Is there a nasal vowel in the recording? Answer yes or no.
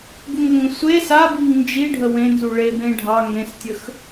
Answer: yes